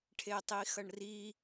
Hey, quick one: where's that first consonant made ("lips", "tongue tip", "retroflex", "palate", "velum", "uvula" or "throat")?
retroflex